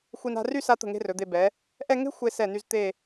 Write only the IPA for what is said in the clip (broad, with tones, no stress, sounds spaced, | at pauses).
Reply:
xʷ i˧ n a̤˥˧ r y˥˧ s a˧ t̪ ə̤˧˩ ŋ e̤˧ r ɵ˩˧ d̪ e˧ b ɛ˩˧ | ʔ ɛ˥˧ ŋ e̤˥ xʷ e˧ s ɛ˧˩ n y˧ z t̪ e˥˧